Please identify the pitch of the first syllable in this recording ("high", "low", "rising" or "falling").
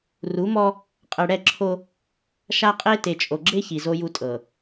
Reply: rising